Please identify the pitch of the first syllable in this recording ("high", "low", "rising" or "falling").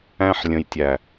high